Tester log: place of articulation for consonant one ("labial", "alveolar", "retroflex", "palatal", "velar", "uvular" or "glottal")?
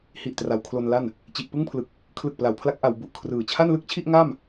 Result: glottal